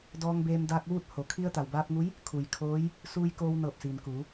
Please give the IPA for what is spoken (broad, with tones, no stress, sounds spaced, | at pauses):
d ɔː˧ ŋ b eː˧ m d aː˧ k̚ ʋ uː˥˨ t̚ h o˩˧ kʰ i˧ ə̯ t̪ a˩ w b aː˧ p̚ ŋ u˧˥ j | kʰ u˩ j kʰ oː˧˥ j | s uː˧ j k oː˧ w n ɤː˧˩ p̚ s iː˩ n k uː˩˧